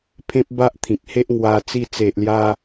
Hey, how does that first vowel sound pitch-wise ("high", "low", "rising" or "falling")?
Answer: high